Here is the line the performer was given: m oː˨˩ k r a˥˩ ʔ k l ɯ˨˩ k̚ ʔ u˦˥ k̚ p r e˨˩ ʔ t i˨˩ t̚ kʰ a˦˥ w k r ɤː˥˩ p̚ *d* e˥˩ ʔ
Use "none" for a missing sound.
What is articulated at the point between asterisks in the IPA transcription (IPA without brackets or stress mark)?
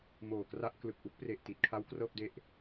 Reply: d